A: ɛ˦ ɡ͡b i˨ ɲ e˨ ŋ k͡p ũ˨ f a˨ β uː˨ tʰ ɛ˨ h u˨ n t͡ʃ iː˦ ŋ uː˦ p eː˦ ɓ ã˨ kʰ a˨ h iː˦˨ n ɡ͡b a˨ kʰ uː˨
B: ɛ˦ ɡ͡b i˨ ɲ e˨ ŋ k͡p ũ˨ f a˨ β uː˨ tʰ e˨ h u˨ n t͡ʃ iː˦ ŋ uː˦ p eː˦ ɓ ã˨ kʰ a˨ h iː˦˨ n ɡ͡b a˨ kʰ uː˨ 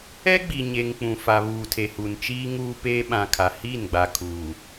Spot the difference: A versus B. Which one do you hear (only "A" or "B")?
B